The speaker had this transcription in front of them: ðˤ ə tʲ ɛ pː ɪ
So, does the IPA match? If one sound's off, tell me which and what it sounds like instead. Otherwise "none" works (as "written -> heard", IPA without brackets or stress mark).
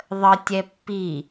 ɪ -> i